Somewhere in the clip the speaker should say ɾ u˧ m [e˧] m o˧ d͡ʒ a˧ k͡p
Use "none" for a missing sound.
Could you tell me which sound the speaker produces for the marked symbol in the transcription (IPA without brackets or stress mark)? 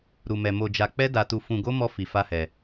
ɛ˧